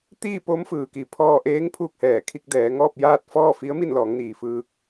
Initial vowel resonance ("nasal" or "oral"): oral